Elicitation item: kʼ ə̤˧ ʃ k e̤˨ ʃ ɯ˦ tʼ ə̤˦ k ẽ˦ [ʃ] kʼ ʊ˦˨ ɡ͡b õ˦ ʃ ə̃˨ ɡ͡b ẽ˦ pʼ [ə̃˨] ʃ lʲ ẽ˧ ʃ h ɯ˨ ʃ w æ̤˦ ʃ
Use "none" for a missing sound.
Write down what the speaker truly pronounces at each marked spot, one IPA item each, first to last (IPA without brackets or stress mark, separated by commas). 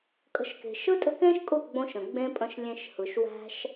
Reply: ʃ, ə̃˧